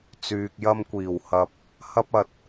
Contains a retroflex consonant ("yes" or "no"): no